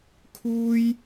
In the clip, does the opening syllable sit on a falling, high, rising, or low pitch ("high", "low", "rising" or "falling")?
high